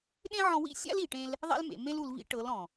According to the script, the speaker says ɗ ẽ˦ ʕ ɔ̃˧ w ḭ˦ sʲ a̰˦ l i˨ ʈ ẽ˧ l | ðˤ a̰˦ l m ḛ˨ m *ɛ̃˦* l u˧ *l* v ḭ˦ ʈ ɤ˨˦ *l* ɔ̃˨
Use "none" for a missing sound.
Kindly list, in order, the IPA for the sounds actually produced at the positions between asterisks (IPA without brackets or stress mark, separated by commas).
ẽ˦, l, l